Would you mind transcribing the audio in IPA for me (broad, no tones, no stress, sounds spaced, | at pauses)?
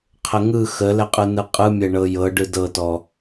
qʰ ə ŋ ɯ x ə l ɛ qʼ ɯ n ɯ qʼ ɯ mʲ ɛ ɳ ɤ j ɤ ɖ ɯ d ɤ t ɔ